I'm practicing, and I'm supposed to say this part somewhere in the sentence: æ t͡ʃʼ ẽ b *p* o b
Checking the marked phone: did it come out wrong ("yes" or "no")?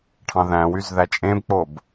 yes